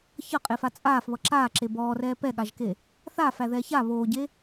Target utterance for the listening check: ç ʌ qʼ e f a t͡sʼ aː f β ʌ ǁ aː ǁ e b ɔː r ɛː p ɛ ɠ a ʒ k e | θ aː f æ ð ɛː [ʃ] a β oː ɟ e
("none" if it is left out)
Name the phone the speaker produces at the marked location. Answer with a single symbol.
ç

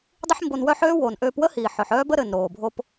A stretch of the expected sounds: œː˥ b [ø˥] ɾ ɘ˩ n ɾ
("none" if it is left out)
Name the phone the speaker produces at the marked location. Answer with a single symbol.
ə˥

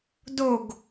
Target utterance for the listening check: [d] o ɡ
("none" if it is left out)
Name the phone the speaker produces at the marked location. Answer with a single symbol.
d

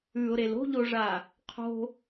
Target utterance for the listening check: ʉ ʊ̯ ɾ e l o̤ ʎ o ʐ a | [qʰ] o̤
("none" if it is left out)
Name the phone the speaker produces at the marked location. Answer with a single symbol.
qʰ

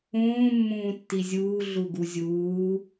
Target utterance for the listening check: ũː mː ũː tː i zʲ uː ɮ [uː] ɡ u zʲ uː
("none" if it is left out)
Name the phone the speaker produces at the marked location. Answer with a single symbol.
u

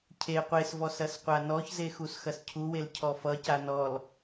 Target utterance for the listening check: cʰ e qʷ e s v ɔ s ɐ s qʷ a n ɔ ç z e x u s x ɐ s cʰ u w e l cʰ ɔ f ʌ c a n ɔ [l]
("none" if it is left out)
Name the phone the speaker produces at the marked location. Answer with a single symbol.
l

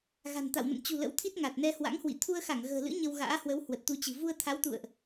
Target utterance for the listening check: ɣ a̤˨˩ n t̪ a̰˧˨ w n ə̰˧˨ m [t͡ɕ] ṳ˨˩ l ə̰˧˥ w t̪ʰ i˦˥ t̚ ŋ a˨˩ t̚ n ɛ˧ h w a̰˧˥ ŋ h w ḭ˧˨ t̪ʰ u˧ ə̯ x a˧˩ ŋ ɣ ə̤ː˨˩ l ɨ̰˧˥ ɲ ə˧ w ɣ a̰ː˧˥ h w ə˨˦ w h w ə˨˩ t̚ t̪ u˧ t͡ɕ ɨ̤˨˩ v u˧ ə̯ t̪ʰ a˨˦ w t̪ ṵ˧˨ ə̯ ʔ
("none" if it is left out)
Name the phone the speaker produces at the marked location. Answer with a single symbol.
t͡ɕ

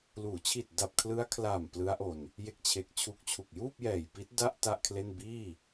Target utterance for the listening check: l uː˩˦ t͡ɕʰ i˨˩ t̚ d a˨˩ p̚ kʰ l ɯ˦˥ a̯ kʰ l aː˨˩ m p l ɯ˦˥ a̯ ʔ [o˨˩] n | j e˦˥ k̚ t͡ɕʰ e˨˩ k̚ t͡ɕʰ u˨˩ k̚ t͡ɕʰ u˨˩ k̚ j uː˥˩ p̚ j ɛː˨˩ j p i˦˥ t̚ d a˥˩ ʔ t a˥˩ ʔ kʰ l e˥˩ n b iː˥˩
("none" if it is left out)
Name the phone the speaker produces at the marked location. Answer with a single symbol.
o˧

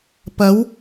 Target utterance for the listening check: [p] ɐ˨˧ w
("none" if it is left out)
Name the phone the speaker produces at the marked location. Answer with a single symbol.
p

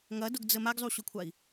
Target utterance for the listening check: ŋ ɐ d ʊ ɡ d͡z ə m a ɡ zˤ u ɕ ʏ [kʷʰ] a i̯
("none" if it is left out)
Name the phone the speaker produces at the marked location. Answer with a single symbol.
kʷʰ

